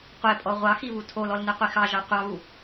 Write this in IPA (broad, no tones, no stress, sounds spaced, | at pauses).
qʷ e pʼ ɔ ʁʷ ɑ x i β u tʰ o l ɔ l n e qʷ i x ɑ ʒ ɑ qʷ ɑ β u